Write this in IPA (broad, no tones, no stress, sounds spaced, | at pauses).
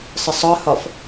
sˤ ə sˤ ɒ h ɒ f